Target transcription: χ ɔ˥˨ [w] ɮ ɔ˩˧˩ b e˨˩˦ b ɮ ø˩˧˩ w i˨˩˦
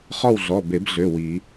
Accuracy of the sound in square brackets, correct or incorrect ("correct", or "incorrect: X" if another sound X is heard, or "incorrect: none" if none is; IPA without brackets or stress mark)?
correct